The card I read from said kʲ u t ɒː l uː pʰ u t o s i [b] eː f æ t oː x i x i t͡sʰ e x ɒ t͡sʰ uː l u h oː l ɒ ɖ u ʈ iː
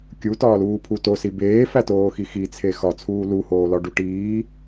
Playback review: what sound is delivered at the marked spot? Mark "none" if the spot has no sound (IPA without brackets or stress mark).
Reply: b